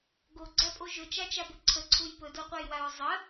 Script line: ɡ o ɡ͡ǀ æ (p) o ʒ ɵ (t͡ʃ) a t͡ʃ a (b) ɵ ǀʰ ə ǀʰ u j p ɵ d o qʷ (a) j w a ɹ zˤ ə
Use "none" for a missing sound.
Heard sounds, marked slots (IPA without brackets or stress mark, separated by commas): pʼ, t͡ʃ, b, æ